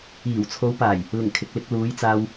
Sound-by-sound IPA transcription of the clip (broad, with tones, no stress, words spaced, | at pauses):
iː˨˩w t͡sʰo˨˧wpaː˨˩j | lɪ˨˩ŋ kʰɪ˨k̚lɪ˧k̚luː˨˧j t͡saː˧w